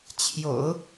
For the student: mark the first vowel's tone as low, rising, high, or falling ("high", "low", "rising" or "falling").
low